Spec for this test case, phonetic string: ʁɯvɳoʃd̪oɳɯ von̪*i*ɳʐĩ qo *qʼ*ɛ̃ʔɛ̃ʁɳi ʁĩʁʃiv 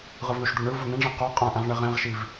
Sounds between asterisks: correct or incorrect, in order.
incorrect, correct

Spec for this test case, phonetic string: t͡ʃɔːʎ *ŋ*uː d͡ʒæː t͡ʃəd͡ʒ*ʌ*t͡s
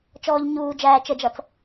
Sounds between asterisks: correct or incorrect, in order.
incorrect, correct

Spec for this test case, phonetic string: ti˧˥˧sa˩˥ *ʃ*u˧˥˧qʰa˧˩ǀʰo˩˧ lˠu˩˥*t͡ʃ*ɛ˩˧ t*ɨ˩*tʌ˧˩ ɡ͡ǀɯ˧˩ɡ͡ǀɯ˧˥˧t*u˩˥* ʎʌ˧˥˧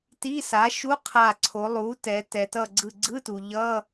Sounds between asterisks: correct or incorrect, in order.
correct, incorrect, incorrect, incorrect

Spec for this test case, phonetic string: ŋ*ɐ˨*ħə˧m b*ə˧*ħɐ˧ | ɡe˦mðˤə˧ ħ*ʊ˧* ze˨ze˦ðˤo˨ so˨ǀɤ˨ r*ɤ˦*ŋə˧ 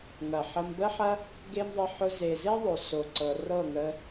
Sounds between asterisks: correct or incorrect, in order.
correct, correct, correct, incorrect

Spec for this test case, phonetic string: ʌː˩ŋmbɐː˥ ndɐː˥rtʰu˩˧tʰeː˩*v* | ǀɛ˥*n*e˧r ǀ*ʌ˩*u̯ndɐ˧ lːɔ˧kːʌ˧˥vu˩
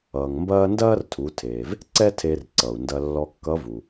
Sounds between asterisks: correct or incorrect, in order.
correct, incorrect, correct

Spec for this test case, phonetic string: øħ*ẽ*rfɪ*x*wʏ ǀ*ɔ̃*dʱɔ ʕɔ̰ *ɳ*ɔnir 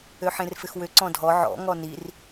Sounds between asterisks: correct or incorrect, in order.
correct, correct, correct, incorrect

